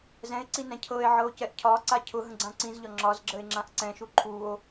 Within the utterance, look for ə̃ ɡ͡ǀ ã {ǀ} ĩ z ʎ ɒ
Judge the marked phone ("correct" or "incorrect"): correct